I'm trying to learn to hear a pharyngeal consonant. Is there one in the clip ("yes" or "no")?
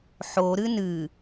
yes